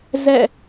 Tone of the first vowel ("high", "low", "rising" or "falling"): falling